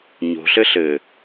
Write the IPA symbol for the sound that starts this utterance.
ɲ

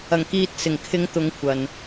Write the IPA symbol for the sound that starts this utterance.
ɐ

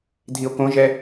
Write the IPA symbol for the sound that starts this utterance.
dʱ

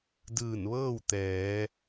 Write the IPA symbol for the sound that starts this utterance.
d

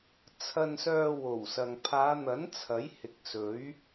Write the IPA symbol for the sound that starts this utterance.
t͡sʰ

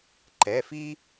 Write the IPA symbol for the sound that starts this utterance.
ǃ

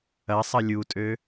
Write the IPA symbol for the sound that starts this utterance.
ɐ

